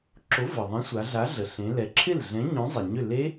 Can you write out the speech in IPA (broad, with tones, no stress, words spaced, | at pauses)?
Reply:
ǁo˨˥və˩ðˤɛ̃˨˥sʷa˩˧ ɮa˨˥ɮə˩ ɬẽ˩˧lɛ˩˧ ǁʰɪ˥˩lɮɛ̃˨˥ ɲõ˨˥zˤe˩ɲʏ˥˩ le˦˥